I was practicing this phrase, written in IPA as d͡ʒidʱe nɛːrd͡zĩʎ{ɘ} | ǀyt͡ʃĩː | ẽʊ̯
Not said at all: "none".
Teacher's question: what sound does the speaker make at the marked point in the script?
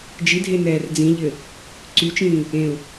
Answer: ɘ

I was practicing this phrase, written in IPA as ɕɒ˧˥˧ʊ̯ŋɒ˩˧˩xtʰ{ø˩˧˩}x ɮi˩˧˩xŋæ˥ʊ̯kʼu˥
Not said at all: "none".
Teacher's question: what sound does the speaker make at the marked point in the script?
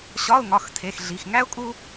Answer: e˩˧˩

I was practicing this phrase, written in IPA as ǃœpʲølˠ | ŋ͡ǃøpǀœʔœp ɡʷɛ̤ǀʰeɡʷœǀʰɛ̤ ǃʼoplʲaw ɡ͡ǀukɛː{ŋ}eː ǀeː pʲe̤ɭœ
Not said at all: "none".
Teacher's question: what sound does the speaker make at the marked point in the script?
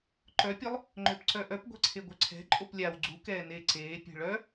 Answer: n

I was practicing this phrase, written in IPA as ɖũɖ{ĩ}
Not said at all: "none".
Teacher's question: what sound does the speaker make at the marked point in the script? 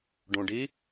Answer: i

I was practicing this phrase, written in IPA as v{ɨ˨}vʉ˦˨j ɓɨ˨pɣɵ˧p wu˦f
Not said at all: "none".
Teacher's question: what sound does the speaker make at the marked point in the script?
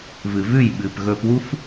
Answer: ɨ˨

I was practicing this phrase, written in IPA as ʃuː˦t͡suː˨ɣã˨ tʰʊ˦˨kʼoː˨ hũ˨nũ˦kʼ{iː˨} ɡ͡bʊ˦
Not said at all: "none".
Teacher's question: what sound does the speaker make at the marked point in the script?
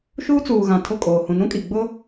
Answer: i˨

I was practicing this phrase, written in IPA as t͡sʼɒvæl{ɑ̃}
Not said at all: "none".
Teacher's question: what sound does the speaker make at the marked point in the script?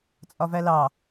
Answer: ɑ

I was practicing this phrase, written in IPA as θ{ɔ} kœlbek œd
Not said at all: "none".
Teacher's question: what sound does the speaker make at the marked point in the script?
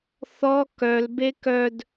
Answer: ɔ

